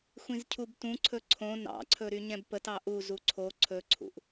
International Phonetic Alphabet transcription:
xʷĩzcʰubtũǀʰɵ ǀʰõ nɑ̰ǀʰɵ ɾyɲɛ̃bpətɑ ʔuzu ǀʰo ǀʰɵǀʰṵʔ

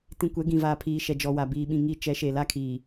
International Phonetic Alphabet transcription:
tĩ˨kʷɛ˨˦ ɡĩ˨vaː˨pʰiː˨ ʃɛ˨d͡ʒɔ˨wa˨biː˨ ɓĩ˨ŋi˨ t͡ʃɛ˨˦ʃe˨ la˦kʰiː˨

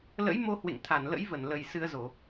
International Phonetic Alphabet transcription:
lə̰˧˥jmo˧ hwḛ˧˨ŋt̪ʰa˧˩nlə̰˧˥j və˧˩nlə˨˩j sɨ˧ə̯zo˧˩˨

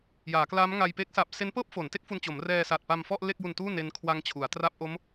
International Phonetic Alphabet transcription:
jaː˩˦klaː˦˥mŋa˧j pe˦˥k̚sa˨˩p̚ se˦˥npɤː˥˩p̚fo˩˦n te˦˥k̚fu˧nt͡ɕo˩˦m rɛː˧sa˨˩t̚ pa˧mfɔ˥˩ʔ le˥˩k̚ju˧ntuː˥˩ ne˦˥n kʰwa˦˥ŋ t͡ɕʰu˩˦a̯ tra˦˥p̚ʔo˦˥m

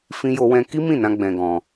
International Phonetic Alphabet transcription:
fĩ˦jo˦wɛ̃˦ ki˦mĩ˦˨nã˧ ɡ͡bɛ̃˧ɡɔ̃˧

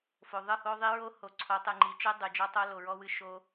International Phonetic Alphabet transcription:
fo˨ðˤɨ˦˨ho˦ðˤi˦ ɹo˦ho˨ǀʰo˨˦ tˤɨ˨ŋ͡ǃi˨t͡ʃɨ˦ dˤɨ˨d͡ʒɔ˦tˤo˦ lo˨ɹɔ˦wɨ˦ ʃo˦

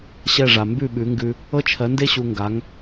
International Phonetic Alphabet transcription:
ɕɛ˥˩ʐa˩ mbʉ˥˩ɓʉ˩˥ŋɡʉ˧ | ɤ˥t͡ʃʰɜ˩˥nde˥ ɕu˧ŋɡa˩˥ŋ

